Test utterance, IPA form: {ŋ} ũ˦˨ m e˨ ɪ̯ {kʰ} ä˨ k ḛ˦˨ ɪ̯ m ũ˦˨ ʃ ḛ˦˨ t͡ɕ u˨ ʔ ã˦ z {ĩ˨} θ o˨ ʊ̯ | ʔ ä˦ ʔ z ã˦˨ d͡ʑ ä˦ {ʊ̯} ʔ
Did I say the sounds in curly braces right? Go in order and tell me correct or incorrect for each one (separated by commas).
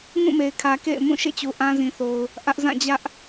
correct, correct, correct, incorrect